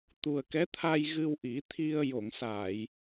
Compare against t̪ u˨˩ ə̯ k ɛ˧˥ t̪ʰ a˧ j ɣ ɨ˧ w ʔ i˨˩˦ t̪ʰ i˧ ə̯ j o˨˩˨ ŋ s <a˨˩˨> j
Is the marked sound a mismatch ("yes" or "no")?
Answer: no